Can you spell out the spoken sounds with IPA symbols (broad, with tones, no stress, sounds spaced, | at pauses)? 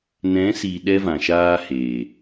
n ɛ̃˨˦ s i˨ ɗ ɛ˦ v ã˨ ʃ aː˦ h eː˨